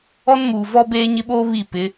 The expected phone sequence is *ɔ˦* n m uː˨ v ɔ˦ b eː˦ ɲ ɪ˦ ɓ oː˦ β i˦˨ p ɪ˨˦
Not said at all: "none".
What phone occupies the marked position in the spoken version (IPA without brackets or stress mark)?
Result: ɔ˦